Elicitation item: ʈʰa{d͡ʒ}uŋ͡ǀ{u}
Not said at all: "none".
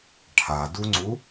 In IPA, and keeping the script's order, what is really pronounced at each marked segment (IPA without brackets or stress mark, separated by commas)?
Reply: d, u